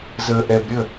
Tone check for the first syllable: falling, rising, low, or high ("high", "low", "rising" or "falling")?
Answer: low